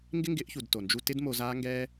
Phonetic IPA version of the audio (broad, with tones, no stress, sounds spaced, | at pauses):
ŋ ɡ ɪ˦ ŋ ɡ ɪ˨˦ ʔ ç u˨ d t o˨ n d͡ʒ u˧ t ɪ˦ d m o˧ z aː˦ ŋ ɡ ɛː˦